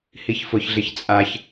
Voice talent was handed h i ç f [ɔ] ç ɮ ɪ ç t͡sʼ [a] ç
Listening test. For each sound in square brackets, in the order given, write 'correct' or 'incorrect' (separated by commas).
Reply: incorrect, correct